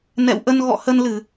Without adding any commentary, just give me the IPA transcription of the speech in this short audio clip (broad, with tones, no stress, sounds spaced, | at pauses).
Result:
n ɛ̰˧˨ w ʔ ə˧ n ɣ ɔ̰˧˨ h ə˧ n l ɨ˧˩˨